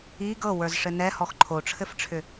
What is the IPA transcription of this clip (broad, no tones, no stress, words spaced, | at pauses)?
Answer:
i ɡɤwə˞zʂɘ nɛhɔx ǃʰoʈ͡ʂʰɘfʈ͡ʂʰʏ